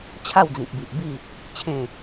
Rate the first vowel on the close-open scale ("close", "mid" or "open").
open